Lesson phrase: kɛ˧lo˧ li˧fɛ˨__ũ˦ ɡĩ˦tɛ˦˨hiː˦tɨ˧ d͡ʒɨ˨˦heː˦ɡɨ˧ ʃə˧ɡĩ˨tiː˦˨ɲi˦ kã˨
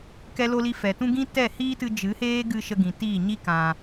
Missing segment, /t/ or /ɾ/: t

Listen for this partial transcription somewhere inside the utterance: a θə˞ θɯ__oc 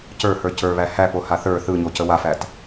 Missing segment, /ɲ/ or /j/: ɲ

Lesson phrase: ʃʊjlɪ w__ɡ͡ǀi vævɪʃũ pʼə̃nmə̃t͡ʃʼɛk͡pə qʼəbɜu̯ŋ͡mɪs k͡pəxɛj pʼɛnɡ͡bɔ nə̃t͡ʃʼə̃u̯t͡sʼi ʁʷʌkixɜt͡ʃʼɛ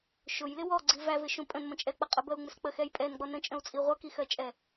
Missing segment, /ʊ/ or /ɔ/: ɔ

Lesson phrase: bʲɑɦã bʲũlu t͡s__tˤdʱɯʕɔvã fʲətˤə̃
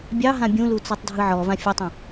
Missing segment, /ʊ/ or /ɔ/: ɔ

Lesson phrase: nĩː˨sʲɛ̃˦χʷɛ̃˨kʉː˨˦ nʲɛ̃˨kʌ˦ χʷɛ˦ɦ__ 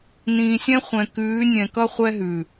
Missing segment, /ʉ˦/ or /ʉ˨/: ʉ˨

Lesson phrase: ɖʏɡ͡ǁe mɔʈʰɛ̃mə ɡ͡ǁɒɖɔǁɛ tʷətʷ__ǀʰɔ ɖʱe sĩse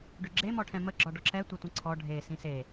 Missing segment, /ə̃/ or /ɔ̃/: ə̃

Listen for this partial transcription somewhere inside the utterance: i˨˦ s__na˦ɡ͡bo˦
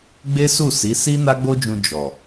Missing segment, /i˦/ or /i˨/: i˦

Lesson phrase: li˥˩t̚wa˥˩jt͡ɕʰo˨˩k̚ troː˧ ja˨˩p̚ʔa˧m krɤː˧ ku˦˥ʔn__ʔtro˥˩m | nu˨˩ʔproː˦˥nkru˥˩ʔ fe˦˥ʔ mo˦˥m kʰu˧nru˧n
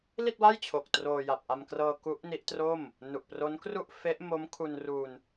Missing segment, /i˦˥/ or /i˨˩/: i˦˥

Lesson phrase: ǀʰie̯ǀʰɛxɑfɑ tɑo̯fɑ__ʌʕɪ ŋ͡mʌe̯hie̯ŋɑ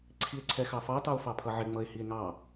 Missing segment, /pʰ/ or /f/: pʰ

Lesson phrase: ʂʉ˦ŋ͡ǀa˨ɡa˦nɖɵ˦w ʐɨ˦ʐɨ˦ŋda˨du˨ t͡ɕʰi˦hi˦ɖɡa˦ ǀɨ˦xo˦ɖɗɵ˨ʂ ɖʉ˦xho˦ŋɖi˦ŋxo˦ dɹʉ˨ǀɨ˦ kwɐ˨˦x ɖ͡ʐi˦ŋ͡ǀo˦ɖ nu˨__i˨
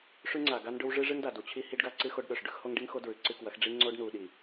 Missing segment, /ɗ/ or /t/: ɗ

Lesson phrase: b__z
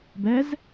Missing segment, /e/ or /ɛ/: ɛ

